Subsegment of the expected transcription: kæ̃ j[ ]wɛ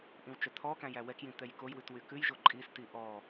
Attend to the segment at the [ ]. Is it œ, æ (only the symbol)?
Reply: æ